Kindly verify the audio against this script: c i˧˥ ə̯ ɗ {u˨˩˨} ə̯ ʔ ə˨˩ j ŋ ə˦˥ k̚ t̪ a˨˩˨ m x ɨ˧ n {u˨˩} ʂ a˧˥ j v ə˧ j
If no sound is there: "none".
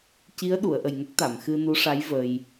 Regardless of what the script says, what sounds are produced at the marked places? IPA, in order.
u˨˩˨, u˧˥

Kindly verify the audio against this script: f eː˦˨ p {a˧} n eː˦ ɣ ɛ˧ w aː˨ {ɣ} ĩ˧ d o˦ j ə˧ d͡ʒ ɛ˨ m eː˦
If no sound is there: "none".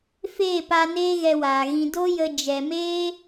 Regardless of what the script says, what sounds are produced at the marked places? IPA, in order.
a˧, ɣ

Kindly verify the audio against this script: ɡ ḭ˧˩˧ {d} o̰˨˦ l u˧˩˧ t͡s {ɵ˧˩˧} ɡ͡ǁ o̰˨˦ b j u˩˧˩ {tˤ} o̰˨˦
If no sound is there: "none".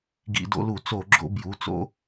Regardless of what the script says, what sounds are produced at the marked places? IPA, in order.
d, o˧˩˧, t͡s

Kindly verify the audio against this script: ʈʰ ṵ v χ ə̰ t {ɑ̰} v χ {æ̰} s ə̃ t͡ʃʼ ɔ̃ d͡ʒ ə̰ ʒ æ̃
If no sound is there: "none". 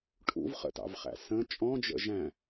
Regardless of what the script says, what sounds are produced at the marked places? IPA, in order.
ɑ̰, æ̰

